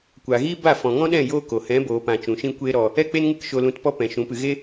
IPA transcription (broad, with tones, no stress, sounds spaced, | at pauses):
kʷ aː˨ ɣ iː˦ b a˦˨ f ɔ̃˨ ŋ ɔ̃˦ ɗ ɛ̃˦˨ j oː˦ k o˨ h ɛ̃˨˦ b oː˨ p ã˨ t͡ʃ ũ˨ ʃ ĩ˦ kʷ eː˦ ɾ ɔ˧ | ɛ˦ k͡p e˦ n ŋ ɨ˦ k ʃ o˧ l ũ˧ t p ɔ˦ p ɛ̃˨ ʃ ũ˨˦ p ɨ˧ ɣ e˦